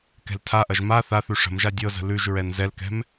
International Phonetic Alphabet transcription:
kɛ̤ltʰaʔɐʒ ma θaθʉ ʂə̤mʒa dʲɤzə̤ lʉʒɹɛn zɛlkɛ̤m

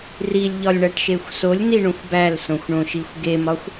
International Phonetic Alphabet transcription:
rilʲʎɒlʲɳæʈʃexʷ solʲniɳõxʷ bælsõxʷɳõʃixʷ ɡemɒxʷ

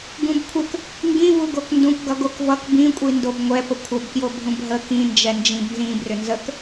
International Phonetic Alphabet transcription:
ɡũbkʷʰək | ŋɡĩvu ɡokndũkɡʌ ɡokvʌk bĩkʷʼindob ŋʷɛpə kʷʰəbkjo bʱũbɦə kĩnd͡ʒɛ nd͡ʒĩbnzĩ brʏnzək

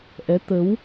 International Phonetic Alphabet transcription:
ʔɛ˨˦t̪ə˨˦w

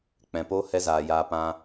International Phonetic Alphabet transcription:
k͡pɛ̃˨poː˦ hɛ˦zaː˨ jaː˧ pã˧

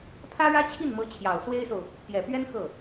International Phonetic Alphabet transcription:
pʰä˥ɻä˥t͡ɕʰi˥˩nmɤ˧˥ t͡ɕʰjɑ˨˩ʊ̯swe˥ɪ̯so˨ʊ̯ | pjɛ˨˩pɥɛ˥n xɤ˥˩

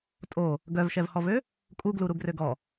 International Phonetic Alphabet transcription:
tʼo | ɡœvʃɛvhɔvø | kʼuɡluɾuɡrøɡ ɔ

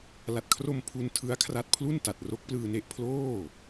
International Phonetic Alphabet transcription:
la˨˩t̚kʰro˧m pʰu˧ntʰɯ˦˥a̯kʰra˦˥t̚ pʰlu˥˩nta˨˩t̚ ro˦˥k̚plɯː˧ne˦˥ʔ pʰloː˥˩

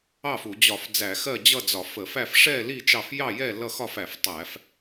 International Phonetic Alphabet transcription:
ɑ˥˨fu˧˩˧ d͡ʑɒ˧˩˧f d͡zæ˧˩˧xɜ˥˨ d͡ʑʌ˥˨d͡zɒ˧˩˧fə˧˩˧fæ˥˨f ʂɛ˥˨ li˥˨ t͡ʃɑ˥˨f jɑ˥˨jɛ˥˨ lʌ˥˨xɒ˥˨fæ˧˩˧f tˤæ˧˩˧f

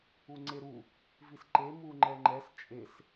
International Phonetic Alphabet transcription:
uŋ͡ǀeɾu | visǃe muŋ͡ǃɛŋ͡ǃɛs t͡ʃʼes

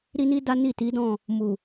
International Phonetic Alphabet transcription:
ɾi˧ni˧ da˦ ni˦˨ti˨˦dɔ̃˦˨ | mu˨

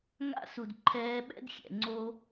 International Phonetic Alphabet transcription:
ŋa̰˦su˨d ǃʰɛː˧ɓɛ̰˦dxʲɛ̰˨ ŋ͡ǀo˦

